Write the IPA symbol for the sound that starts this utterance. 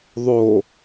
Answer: ðˤ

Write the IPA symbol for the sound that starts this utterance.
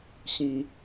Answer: ɕ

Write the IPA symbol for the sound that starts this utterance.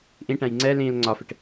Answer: ʔ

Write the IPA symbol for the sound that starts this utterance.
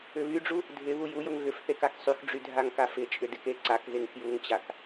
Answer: ʏ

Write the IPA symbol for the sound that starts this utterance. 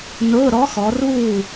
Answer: n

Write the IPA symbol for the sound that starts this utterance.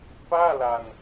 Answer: p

